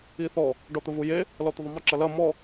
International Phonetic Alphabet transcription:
i θ ɔ | ɖ ɔ t̪ ə v u j e | l ɔ t̪ ə ðˤ ɵ m ə ǁ ɐ l ɐ m ɔ

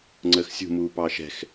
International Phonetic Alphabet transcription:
ŋ͡ǀ əː x sʲ ṳ m uː p ɑː ʃ ɛ̤ x

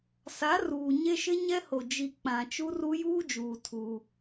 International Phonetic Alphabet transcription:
s a˨˦ r uː˨ ɲ e˦ ʃ ɪ˦ ɲ ɛ˦ h o˨ d͡ʒ i˨ k͡p ã˨ t͡ʃ u˦ r u˦ j uː˦ d͡ʒ uː˨ tʰ u˦

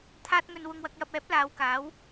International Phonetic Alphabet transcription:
t̪ʰ aː˧ t̚ ŋ ɵ˨ n w ʊ˨ ŋ w ɐ˨ k̚ j ɐ˨ p̚ ɛː˨˥ p̚ l aː˨˧ w k aː˨˥ w

